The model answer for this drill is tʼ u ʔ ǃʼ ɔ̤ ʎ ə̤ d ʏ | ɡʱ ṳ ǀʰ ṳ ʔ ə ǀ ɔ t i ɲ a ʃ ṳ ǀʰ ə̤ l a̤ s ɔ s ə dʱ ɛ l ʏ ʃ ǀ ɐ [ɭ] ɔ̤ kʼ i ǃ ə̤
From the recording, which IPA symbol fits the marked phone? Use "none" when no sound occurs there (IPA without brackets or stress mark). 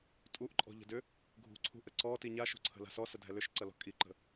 l